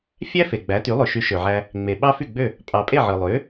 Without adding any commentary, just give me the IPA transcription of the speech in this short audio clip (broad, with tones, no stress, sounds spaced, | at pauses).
fʲ æ˥ f e˩ ɡ͡b æ˩˥ t y˩˥ lˠ ø˩ ʃ y˩˥ ʃ ø˩ ʕ æ˧ | ŋ͡m e˩ ɓ ɑ˥ f y˥˩ ɡ͡b ø˥˩ | pʼ ɑ˩ pʼ e˥˩ ʕ ɯ˩ lˠ ø˩˥